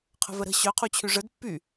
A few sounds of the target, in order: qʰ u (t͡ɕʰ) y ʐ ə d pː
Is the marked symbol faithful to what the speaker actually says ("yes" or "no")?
yes